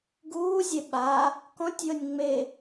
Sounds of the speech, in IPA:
ɡ uː zʲ e ɓ a | k ɔ̃ tʲ j ɤ nʲ ŋ͡m e

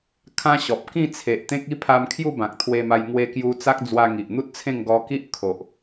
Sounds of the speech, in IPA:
kʰ ã˦ ɕ ɔ˨ p̚ k ĩ˥˧ t͡sʰ e˨ ʔ t̪ ẽ˦ k̚ i˥˧ pʰ a˧ m kʰ j u˥˧ b ã˨ k̚ t̪ʰ w e˧ m a˧ j ŋ w e˧ k j u˧ t͡s a˦ k̚ d͡z w a˧ ŋ i˨ ʔ n̪ u˦ t̚ t͡sʰ ẽ˥˧ ŋ ɡ ɔ˧ k i˦ ʔ kʰ o˨ ʔ

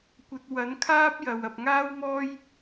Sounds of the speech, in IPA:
kʷ ɐ˧ t̚ w ɐ˨˥ n kʰ aː˥ p̚ j ɐ˨ w ɐ˨ p̚ ŋ aː˥ w m ɔː˥ j

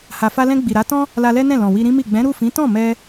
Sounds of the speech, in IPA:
h a˨ f a˧ l ɛ̃˧ ɡ͡b i˨ ɾ a˨˦ t ɔ̃˦ | l a˧ l ɛ˦ n ɛ̃˦˨ l ɔ̃˨ w i˧ ɾ ĩ˦ m i˦˨ ɡ͡b ɛ̃˨˦ ɾ u˦˨ f ĩ˨˦ t ɔ̃˦˨ m ɛ˧

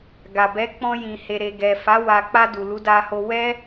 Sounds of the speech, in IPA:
ɡ a˨ b ɛ˨˦ k͡p ɔ̃˧ j ĩ˨ h e˨ ɾ e˨ ɡ ɛ˨ f a˨˦ w a˧ k͡p a˧ d u˨ l u˨˦ d a˧ h o˧ w ɛ˦

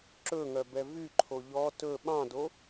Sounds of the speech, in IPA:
ǁ ɵ ŋ œ b ɛ v y ǃʰ o ʎ ɔ t ɵ ɓ ɑ̃ d o

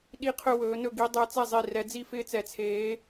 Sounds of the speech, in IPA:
ɗ i˥˧ qʰ ɵ˥˧ w ɵː˩˥ n ɵ˥˩ ɡ i˧˥ dˤ ɛ˧˥ t͡s ɛ˥˩ zˤ i˥˩ r ɛ˧˥ d͡z i˥˧ f ɪː˥˧ t͡s ɛ˧˥ t͡sʰ eː˧˥

